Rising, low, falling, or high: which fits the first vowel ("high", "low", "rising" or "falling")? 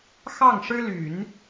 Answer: falling